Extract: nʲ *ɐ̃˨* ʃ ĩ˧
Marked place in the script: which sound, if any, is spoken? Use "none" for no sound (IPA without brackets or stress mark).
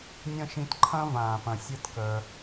ɐ̃˦